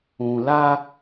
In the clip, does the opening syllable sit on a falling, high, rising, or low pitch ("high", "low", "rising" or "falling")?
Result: low